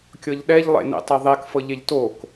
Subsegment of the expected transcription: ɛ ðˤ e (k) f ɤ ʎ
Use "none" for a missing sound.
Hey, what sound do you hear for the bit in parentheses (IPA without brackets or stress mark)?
k